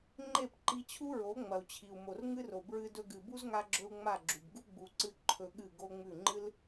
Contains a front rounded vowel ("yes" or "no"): no